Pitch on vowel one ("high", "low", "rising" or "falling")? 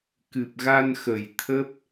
low